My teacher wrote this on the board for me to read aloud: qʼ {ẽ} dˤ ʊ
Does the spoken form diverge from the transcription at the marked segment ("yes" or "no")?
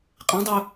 no